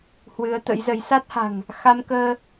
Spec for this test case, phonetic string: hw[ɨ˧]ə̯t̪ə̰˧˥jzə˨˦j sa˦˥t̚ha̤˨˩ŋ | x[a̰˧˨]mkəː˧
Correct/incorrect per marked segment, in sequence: incorrect: ɨ˨˦, incorrect: a˧

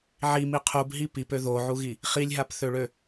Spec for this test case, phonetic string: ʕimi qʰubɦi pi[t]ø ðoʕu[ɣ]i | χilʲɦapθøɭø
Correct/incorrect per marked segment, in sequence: incorrect: p, correct

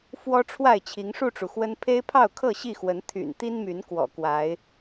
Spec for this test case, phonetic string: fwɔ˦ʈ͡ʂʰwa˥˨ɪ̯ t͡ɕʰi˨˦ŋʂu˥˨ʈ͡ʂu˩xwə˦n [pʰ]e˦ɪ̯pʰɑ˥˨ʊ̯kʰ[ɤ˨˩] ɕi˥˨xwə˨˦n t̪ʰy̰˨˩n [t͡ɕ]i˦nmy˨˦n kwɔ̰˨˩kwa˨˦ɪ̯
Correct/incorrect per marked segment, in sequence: correct, incorrect: ɤ˥˨, incorrect: t̪

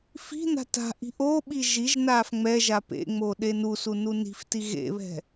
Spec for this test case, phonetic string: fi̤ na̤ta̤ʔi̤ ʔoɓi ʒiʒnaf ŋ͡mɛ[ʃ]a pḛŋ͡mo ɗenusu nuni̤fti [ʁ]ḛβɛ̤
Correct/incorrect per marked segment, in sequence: incorrect: ʒ, incorrect: ɣ

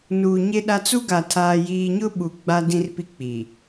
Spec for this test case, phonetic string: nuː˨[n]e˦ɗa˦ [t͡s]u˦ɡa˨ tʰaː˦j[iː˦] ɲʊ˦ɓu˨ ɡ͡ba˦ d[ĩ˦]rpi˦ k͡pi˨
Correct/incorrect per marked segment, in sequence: incorrect: ɲ, correct, correct, correct

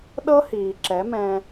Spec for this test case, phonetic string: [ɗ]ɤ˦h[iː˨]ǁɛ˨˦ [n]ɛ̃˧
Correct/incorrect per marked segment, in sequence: correct, correct, incorrect: m

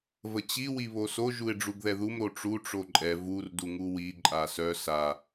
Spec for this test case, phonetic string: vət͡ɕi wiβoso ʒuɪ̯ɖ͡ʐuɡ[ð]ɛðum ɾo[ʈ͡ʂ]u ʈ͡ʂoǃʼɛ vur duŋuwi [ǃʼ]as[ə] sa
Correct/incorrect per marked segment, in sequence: correct, correct, correct, incorrect: œ

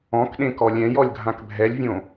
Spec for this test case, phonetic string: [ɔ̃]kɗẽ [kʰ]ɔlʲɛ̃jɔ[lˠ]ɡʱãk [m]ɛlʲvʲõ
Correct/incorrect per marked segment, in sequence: correct, incorrect: k, incorrect: lʲ, incorrect: bʱ

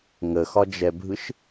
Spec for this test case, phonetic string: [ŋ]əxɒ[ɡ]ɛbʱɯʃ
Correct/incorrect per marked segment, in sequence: correct, incorrect: d͡ʒ

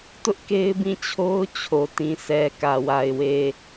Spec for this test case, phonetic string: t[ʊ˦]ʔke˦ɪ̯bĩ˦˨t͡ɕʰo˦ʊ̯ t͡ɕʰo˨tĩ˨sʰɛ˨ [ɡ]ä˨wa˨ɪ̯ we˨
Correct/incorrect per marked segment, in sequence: correct, incorrect: k

